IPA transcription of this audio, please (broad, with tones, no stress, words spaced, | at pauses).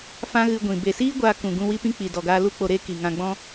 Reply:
fã˦ɣɨ˧ɡʷĩ˨ be˨siː˦ ɡʷaː˧kũ˨ ɡũ˧wi˦pĩ˦ k͡pi˨dɔ˨ɡaː˧ lu˦k͡po˧ ɾe˦ ki˨ŋã˧ɡ͡bɔ̃˦